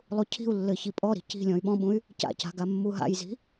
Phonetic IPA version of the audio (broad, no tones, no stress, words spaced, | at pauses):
lˠucʰi̤u̯lːɘ çipʼɔɾi̤ ci̤ lʲɔ̃y̯ɓɔ̃ɓũy̯ | ca̰ca̤ ɡamːuɦa̰jzi̤